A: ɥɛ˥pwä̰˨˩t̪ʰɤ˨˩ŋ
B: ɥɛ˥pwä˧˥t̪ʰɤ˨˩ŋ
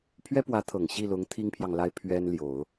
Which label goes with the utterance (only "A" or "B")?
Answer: B